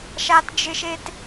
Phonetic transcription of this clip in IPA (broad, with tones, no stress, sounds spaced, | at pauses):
ʃ a˦ t d͡ʒ ɪ˦ ʃ e˦ t